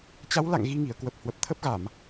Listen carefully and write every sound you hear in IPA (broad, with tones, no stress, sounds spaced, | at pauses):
t͡ɕ a˨˦ w l a̰˧˨ ŋ ɣ i˧ ŋ i˧˩ ə̯ k w ə˨˩ p̚ h w ə˨˩ p̚ t̪ʰ ə˦˥ p̚ ɣ a˧˩˨ m